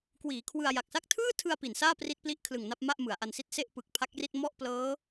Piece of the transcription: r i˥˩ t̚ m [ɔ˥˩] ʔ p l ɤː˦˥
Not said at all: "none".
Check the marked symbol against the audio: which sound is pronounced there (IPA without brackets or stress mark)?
ɔ˥˩